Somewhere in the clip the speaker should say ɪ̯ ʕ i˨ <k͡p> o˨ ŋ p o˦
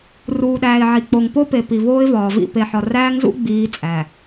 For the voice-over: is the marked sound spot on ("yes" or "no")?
yes